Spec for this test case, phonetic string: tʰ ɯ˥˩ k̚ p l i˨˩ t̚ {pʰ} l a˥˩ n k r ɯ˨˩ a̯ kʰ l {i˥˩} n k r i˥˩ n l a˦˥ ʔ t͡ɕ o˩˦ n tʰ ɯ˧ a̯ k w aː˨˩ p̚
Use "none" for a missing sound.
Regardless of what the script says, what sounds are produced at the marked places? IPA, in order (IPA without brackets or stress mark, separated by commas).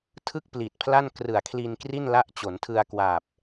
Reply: pʰ, i˧